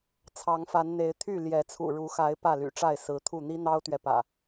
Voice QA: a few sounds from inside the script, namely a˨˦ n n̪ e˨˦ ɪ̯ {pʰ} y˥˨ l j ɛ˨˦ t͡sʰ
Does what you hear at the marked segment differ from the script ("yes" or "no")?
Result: yes